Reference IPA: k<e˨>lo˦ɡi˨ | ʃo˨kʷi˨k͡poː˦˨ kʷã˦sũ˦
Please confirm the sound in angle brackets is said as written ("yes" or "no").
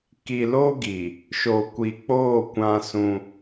no